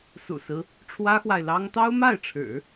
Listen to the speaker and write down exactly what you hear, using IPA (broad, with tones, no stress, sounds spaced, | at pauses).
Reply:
s ṵ˨˩ s ɹ̩˦ | ʈ͡ʂʰ w ä˥ x w a˨ ɪ̯ l ɑ˥ ŋ t̪ ɑ˥ ʊ̯ m a˥˩ ɪ̯ ʈ͡ʂʰ ɻ̩˨˩˦